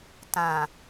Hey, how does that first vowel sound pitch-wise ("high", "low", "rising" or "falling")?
low